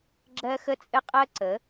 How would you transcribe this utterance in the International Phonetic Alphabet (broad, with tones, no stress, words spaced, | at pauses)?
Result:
ɡ͡ǁɜ˦xə˦ t͡sʼɘ˦qʼɜ˦ǀə˨˦